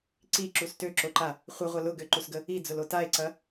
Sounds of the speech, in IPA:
ǀ i ǁ u s t ø ǁ o ǃ a | χʷ ə ʁʷ ɐ l ʊ ɡ ø ǃ u s ɡ ə | i d͡z ʊ l o t a e̯ ǀ ɐ

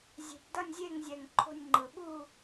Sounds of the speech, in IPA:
zʲ e̤˨˩ p d ʌ˥˨ nʲ zʲ e˥˨ ŋ zʲ ɛ˨˩ ŋ ǃʰ o̤˥˨ nʲ ŋ͡ǃ ɯ˨˩ ɓ u˥˨

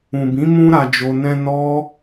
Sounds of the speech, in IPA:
ũ˨ b ĩ˨˦ m ũ˧ ɾ a˨ d͡ʒ o˨ n ɛ̃˧ n ɔ˦

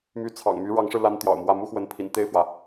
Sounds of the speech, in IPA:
m y˧˥ t͡sʰ ɑ̰˨˩ ŋ m y˧˥ ɻ ɑ˧˥ ŋ ʂ ɻ̩˧ l a˥ n t̪ j ɑ̰˨˩ ʊ̯ m w ä˥˩ m u˥ x w ə˧˥ n pʰ ḭ˨˩ n t̪ e˥˩ ɪ̯ f w ä˩

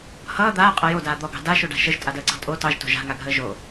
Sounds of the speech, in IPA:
h ʌː d̪ aː qʼ ʌ j o d aː d̪ ɔ ɡ ɑ̤ d a ʃ o ɖ a̤ ʃ ə ʒ tʼ a d əː ǀ ɑ̤ tʼ o t ɑ ʒ t o̤ ʒ a̤ ŋ a ɡʱ əː ʒ o

